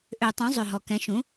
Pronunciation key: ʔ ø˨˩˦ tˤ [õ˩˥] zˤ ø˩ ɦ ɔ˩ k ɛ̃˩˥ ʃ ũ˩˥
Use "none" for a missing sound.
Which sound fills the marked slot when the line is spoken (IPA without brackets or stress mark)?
ũ˩˥